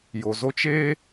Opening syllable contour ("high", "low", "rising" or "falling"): low